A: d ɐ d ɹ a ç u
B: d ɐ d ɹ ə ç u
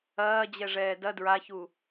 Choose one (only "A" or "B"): A